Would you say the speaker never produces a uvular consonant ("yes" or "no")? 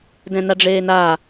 yes